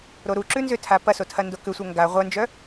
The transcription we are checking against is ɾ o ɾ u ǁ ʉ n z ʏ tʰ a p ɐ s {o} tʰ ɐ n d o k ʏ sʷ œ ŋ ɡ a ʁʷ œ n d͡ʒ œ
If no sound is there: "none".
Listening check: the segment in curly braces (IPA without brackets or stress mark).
o